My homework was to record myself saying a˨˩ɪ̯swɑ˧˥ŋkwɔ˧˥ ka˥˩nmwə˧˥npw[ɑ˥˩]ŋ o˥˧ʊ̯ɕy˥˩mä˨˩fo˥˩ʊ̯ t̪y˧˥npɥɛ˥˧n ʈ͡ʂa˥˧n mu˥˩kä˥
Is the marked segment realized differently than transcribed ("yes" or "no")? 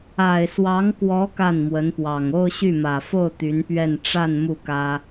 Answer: yes